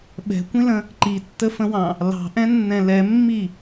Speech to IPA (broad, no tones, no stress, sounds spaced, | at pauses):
ɓ ɛ̤ kʷ ĩ l ə̃ | ǃ i tː ə f ə̃ w ɑ̃ | l ɑ̤ ʔ ɛ̃ nː ɛ̃ l ɛ mː i